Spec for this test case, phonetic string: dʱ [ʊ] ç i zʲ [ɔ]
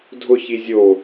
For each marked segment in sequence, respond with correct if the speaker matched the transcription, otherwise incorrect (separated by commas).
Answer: correct, incorrect